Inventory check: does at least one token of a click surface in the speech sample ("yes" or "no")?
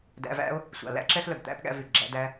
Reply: yes